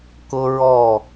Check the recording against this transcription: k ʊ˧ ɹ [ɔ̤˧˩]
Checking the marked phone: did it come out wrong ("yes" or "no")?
yes